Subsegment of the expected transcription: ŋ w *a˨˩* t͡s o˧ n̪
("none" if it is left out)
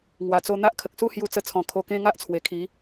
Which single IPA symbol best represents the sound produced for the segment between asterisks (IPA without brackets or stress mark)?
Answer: a˨˩